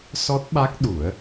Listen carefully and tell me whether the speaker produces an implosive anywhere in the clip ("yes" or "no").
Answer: yes